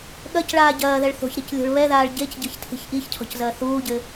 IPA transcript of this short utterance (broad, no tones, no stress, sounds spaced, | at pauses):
ɠ ɐ c ɭ aː ɟ ɐː ð ɛ ɭ θ o̤ ç ɾ i c lʲ o̤ ɭ β ɛ ð aː ɭ ɟ e c ɟ ɘ ç tʰ i̤ ç ʔ i ç cʰ ɔ̤ c z ɐː θ uː ɟ ɘ